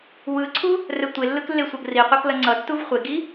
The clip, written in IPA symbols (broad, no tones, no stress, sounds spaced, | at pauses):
w ɯ ǀʰ u | r ɛ tʷ e lː ɯ k lː e sʷ ʌ ɡ r i qʷ ʌ k l ʌ ŋ͡ǀ ʌ tː u v χʷ e ɡ i